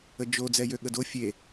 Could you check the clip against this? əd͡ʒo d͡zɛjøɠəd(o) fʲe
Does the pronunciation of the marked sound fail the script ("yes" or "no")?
no